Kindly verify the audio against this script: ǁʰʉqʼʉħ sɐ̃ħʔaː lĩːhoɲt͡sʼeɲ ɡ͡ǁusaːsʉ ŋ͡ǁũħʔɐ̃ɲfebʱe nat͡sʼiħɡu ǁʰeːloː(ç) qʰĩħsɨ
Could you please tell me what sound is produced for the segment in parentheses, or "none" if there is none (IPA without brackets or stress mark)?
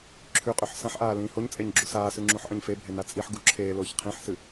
ç